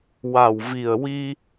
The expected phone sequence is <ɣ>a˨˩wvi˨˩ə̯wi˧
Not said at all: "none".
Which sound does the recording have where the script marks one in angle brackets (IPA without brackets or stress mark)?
w